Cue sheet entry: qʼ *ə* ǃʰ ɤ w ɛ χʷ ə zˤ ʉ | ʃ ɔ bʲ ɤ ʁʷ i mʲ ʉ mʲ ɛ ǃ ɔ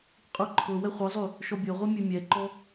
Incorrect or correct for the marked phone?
incorrect: ʉ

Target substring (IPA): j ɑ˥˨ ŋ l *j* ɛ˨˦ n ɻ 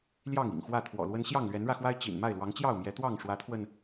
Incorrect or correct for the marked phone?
incorrect: ɥ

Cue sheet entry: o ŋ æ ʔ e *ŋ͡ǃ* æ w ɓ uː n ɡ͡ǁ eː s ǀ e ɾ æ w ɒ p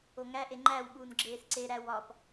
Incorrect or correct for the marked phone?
correct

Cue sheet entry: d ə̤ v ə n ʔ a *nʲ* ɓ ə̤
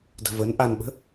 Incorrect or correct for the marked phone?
incorrect: n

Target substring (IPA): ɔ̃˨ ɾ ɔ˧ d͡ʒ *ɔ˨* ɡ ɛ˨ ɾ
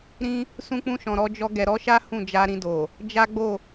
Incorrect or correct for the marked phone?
incorrect: ɔ˧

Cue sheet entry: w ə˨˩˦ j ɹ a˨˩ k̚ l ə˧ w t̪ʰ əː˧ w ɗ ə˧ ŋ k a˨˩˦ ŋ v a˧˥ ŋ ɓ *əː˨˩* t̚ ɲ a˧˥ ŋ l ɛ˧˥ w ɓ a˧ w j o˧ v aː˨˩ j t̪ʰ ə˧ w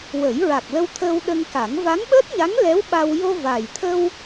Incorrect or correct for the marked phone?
incorrect: əː˦˥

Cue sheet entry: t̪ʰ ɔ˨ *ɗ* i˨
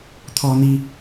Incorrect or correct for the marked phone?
incorrect: n̪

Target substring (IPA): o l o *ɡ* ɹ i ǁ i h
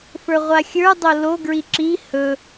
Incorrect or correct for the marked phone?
correct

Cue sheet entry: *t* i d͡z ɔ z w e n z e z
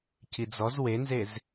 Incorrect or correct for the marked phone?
incorrect: c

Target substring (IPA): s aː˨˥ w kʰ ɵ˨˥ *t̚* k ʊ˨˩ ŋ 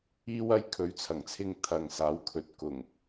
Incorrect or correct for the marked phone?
correct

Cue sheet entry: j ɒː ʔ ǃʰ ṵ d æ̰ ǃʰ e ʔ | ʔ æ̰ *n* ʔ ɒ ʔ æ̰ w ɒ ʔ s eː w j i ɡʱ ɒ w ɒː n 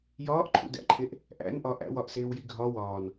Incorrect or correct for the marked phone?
correct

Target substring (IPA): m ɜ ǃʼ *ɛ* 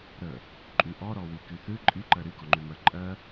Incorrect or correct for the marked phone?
incorrect: ɜ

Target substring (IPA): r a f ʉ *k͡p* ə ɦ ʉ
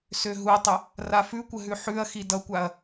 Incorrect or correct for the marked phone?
incorrect: kʷ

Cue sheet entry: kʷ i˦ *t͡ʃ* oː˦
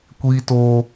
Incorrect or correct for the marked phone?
incorrect: t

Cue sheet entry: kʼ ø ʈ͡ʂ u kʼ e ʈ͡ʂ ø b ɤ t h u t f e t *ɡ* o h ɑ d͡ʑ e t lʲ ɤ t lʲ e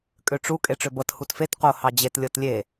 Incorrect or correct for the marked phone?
incorrect: q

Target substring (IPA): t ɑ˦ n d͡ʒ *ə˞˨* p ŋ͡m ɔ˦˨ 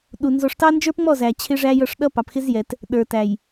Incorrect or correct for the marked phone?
incorrect: ə˞˦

